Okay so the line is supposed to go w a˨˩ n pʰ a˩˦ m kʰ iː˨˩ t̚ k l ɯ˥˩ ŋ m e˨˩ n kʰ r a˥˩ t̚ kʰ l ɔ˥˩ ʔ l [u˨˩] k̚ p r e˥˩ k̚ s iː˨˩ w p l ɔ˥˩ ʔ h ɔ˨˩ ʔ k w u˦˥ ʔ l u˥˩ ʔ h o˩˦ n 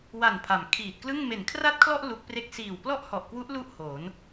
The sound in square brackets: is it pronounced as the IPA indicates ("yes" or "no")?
no